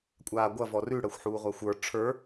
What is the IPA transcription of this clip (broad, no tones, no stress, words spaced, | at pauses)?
kʷʼaːɡʷɐ vɔrʉ ɽəːxʷħuːʁʷaxʷə˞ ʈ͡ʂʰə˞